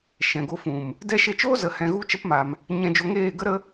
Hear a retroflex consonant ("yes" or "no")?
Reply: no